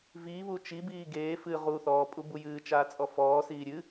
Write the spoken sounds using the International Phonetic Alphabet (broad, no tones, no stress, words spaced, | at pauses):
viːβu t͡ʃibiː ɡeː fɨ ʁu θɔːpʼubu jɨːt͡ʃaːt͡sʼɔ fɔːsiː ɾʲɨ